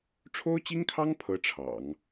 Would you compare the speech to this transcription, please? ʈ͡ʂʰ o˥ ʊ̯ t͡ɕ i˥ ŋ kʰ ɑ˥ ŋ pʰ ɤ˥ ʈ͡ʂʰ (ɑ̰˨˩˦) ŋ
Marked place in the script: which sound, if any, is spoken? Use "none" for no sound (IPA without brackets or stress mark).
ɑ̰˨˩˦